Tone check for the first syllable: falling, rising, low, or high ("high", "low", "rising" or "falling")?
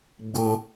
high